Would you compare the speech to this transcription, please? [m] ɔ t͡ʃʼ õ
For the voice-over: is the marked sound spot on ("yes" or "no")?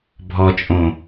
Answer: no